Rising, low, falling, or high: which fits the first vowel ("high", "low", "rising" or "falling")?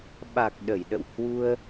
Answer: low